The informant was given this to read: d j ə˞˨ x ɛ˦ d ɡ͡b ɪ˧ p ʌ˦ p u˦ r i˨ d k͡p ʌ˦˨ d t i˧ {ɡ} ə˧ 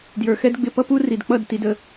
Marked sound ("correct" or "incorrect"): incorrect